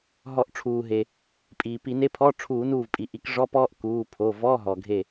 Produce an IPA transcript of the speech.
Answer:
ɦɔ˧˩˧ʔʈ͡ʂʰuː˩ɦe˩ | pʼiː˩pi˧˩˧ne˧˥˧pʰɔ˧˥˧ ʈ͡ʂʰuː˧˩˧nuː˧˩vpʼi˩ʔi˧˩˧k ʐɔ˧˥˧pɔː˥ʔ kuː˩˧˩ pʰo˩˧˩vɔ˧˥˧ɦɔ˩ɡʱe˧˩

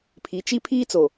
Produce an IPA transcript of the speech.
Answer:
pʰi˨˦t͡ʃi˦ pʰiː˦t͡so˨

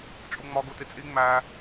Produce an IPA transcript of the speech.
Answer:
t͡ʃʼuŋ͡mɒ ɡutit͡sʼi ŋ͡mæ

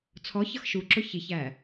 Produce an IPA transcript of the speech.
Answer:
t͡sʰɔçʌx ʃuǁʊ çiçæ

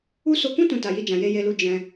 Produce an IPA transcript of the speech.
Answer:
u˦ so˧kũ˦ tũ˦ta˧ji˦d͡ʒã˧ je˧je˧lu˧ d͡ʒɛ̃˧

